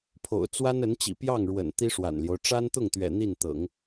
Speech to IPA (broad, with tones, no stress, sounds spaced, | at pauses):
pʰ o̰˨˩ ʊ̯ t͡s w a˥ n ə˧˥ n t͡ɕ ḭ˨˩ p j ɑ˥˩ ŋ ɻ w ə̰˨˩ n t̪ i˥ ʂ w a̰˨˩ n l j o˦ ʊ̯ ʈ͡ʂ a˥ n t̪ ʊ˥˩ ŋ t̪ ɥ ɛ̰˨˩ n̪ i˥˩ n t̪ ɤ̰˨˩˦ ŋ